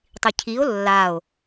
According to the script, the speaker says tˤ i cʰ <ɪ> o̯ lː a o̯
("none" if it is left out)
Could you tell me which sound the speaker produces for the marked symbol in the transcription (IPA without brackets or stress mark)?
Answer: i